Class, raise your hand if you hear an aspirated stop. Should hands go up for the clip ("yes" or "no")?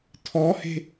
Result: yes